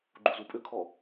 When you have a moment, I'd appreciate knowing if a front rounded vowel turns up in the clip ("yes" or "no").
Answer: yes